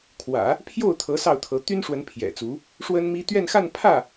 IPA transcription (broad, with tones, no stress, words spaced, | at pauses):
kʰwä̰˨˩˦ | pʰjo˥˩ʊ̯t̪ʰɤ˧˥ sɑ˥˩ʊ̯t̪ʰɤ˧˥ t̪y˥nʂwə˧˥n pʰjɛ̰˨˩t͡su˧˥ | ʂwə˥nmi˥ t̪ɥɛ˥˧nxa˥˧n pʰä˥˩